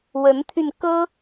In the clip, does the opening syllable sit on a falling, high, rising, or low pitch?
rising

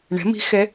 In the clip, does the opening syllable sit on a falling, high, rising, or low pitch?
rising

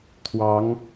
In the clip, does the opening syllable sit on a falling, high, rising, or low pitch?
rising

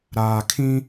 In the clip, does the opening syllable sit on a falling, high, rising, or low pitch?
low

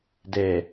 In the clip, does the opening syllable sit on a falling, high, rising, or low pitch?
low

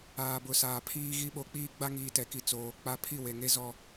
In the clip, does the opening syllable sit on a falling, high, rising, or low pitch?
low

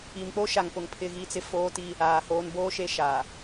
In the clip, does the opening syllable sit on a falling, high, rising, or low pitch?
low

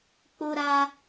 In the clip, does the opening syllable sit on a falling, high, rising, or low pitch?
high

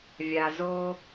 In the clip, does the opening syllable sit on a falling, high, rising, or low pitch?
low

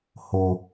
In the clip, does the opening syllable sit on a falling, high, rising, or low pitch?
low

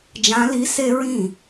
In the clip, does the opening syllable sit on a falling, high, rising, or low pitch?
rising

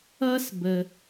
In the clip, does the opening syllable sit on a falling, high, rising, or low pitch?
high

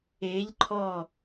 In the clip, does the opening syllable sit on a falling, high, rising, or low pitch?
rising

